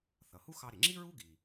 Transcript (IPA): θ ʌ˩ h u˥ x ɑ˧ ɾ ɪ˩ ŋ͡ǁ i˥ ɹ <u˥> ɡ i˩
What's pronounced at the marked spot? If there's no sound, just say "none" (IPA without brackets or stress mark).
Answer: u˥